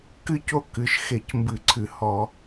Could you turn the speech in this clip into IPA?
k ɨ˦˥ c o˥˨ k ɨ˩˧˩ ʃ x e˧˩˧ c m b ɨ˧˩˧ ǀʰ ɨ˧˩˧ h ɔ˧˩˧

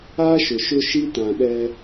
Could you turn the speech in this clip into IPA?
a˦ ʃ ʊ˨ ʃ ʊ˦ ʃ i˦ t ã˨ ɗ ɛ˦

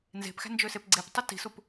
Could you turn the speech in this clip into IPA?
n z e̤ p x æ̤ n d͡ʒ ø s e p ɡ͡ǀ e p tˤ y t i̤ s u p

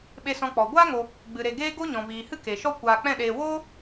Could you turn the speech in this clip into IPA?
ɓ e˧ s ɔ̃˧ k͡p ɔ˨ ɡʷ aː˦ ŋ o˧ | ɡ͡b ɨ˨ ɾ e˧ ɡ eː˦ ɡ o˦ ɲ ɔ̃˨ v iː˨ h ɨ˦ k e˨ ʃ ɔ˦ kʷ aː˧ k͡p ɛ̃˦˨ ɗ eː˧ w oː˦

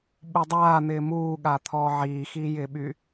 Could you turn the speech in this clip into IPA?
ɓ u dˤ aː n̪ ɪː m uː ɠ a t̪ʰ ɔː ʕ iː x i j ɪː ɓ y

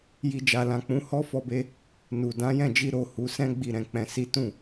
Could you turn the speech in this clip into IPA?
j i˨ d͡ʒ a˨ l ã˨ k͡p ũ˨˦ h ɔ˦ f ɔ˧ b e˦ | n u˨ d ã˨˦ j ɛ̃˦˨ d͡ʒ i˧ ɾ o˨ h u˨˦ s ɛ̃˦ ɡ͡b i˦˨ ɾ ɛ̃˧ k͡p ɛ̃˧ s i˦ t ũ˦˨

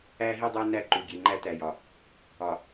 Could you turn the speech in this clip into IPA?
æ˦ ɦ i˦ dˤ æ˦ n æ˦ ǃ u˨ ɡʲ e˨ ŋ͡ǃ æ˦ t æ˨ j ɒ˨ | ɒ˨

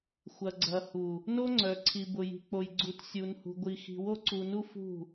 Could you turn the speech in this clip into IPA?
xʷ ɐ˨ ɡ͡ǀ ɐ˨ h u˨ | n o˦ ŋ͡ǀ œ˨ ǀʰ i˨ b ʊ˨ j i̤˨ k͡p o˨ j ɡ͡ǀ u˨ t sʲ u˨ n h ṳ˨ ɡʷ i˨ x i̤˨ w o˦ ǀ u˨ n u˦ f ṳ˦˨

